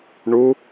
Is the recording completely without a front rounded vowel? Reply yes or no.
yes